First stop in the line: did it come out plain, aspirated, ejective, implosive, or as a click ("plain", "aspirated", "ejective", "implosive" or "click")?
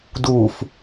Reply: plain